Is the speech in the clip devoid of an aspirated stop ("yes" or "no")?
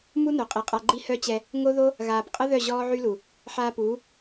yes